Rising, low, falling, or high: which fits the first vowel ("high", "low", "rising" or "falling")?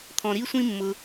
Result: low